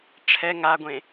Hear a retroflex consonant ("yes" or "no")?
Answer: yes